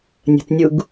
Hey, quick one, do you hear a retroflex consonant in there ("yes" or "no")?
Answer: no